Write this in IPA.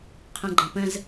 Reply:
qʰɛ̃ɡ͡ǃɐ̃pə̃z

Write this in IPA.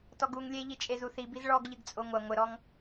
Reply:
tɔɡuŋ lʲeʎi t͡ʃʼezuθibiz ɭɔɡʎɨɡ t͡sʼoŋʷɐ ŋʷɘɾɔŋ

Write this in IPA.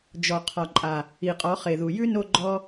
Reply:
d͡ʒɔ˨qʰɒ˨ǃʼa˨ | i˨qʼɔ˨˦χe˨ðu˨ jʉ˦no˧ɡ͡ǃɔ˧

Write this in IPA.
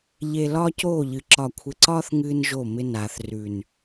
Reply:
ʎe˨ lɒː˦coː˦˨ʎɨ˨ ǁɒ˨kʷʰɪ˨ǀɒː˦θ ŋɨː˦nʒo˦˨mɪ˦ naː˨θrʉ˨n

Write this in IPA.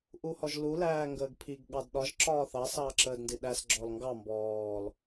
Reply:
ʔuhɔʒlu læːŋɡəːɡpʰiɡ ɠɑdɗɒʒ ǁɒːθɑ sɑːǁəːdndiɗæs ɡ͡ǁɔlŋɡɑ mbɔːl

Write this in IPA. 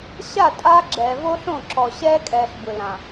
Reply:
ɕa˦˨ tʼaː˦ɡ͡ǁɛː˨ vo˦ɬõ˦˨ǁɔ˨ ɕɛː˦kʼɛː˨ɬ bɯ˨lã˨

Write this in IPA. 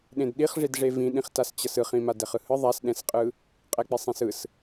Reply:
ɗẽdɗiχʐidʐe vĩɗĩχtas t͡ɕʌsɯχĩmad ɛχɯhɯ ðˤasɗɛ̃sqʼɯ | qʼɛk͡pesˤẽsɯs

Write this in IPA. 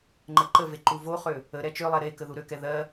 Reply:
ŋ͡ǃəǃəve ǃuvoχø | ə ɾɛt͡ʃølˠɛ ɾekə ðuɾøkɛ ðɜ

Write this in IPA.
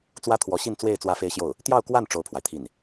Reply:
t͡swä˥t̪ʰwɔ˧˥ɕi˥˧nt͡swe˥˧ɪ̯ t͡swä˥˧fe˥˧ɪ̯ɕjo˥˩ʊ̯ | t̪jɑ˥˧ʊ̯kwa˥˩n ʈ͡ʂo˥ʊ̯pʰwa˨ɪ̯t̪ʰi˥˩n

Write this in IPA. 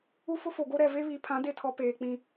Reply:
u˦fʊ˦fo˨ɡo˦ ɾɛ˨ve˦βi˨˦pʰã˨˦ de˦tʰɔ˨˦ peː˨ k͡pĩ˦

